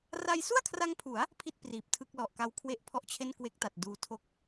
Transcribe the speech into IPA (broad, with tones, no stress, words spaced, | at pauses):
ra˧jsu˥˩a̯kʰra˧ŋpʰu˩˦a̯ | pʰi˦˥t̚ priː˨˩p̚tʰɯ˥˩k̚ lɔ˨˩ʔka˦˥w kʰwe˦˥ʔ pʰɔ˦˥ʔt͡ɕʰe˥˩n kwe˦˥k̚ta˨˩t̚ duː˧tʰo˥˩k̚